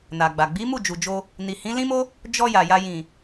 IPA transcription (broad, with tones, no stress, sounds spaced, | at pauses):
n a˨ ɡ͡b a˨ ɡ͡b i˨˦ m u˦˨ d͡ʒ u˨ d͡ʒ o˧ | n i˨ h ĩ˨˦ l ĩ˦ m o˦ | d͡ʒ ɔ˧ j a˨ j a˧ j ĩ˨